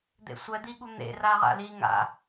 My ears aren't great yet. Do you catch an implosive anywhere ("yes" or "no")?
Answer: yes